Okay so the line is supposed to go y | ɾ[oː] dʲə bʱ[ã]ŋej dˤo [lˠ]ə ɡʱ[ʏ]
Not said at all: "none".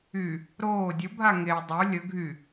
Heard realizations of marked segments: oː, a, lʲ, y

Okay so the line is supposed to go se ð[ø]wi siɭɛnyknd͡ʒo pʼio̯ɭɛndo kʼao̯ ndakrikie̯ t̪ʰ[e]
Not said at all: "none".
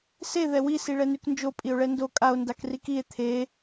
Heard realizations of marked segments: ɛ, e

